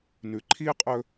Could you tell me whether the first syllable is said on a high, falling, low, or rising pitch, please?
low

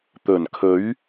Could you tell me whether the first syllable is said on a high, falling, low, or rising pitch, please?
low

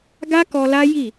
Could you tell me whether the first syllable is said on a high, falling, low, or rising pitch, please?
high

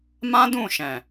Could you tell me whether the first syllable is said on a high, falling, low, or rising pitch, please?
high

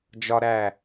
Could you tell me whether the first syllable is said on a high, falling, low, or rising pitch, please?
high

